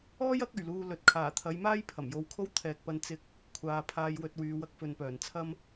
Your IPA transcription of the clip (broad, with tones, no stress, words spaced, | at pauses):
ɔː˥jɐ˨˥k̚ɵ˨˩ɥ luː˧lɵ˨t̚ kʰaː˨˩t̪ʰɐ˨˧jmaː˥j pʰɐ˨˩mjo˧wkʰo˥w t̪ʰɛː˨k̚pɐ˧n t͡sɪ˥k̚ | kʷʰaː˨pʰaː˧jwɵ˧t̚wyː˨˧ wɐ˧k̚fɵ˨npœː˨˩nt͡sʰɐ˥m